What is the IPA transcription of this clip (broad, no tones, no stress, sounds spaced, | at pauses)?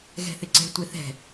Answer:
ɣ ɛ̤ θ ɪ ǀ ɛ̤ tʷ ɪ θ ɛ̤